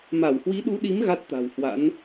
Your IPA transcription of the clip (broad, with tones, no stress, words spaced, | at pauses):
ma˧˩whwi˨˦ɗu˨˦ɗi˨˦m ɣa˦˥t̚t̪a̤˨˩w hwa̰˧˥n